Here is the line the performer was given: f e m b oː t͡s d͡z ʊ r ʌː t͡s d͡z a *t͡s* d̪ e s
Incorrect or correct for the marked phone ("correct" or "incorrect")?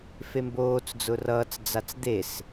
correct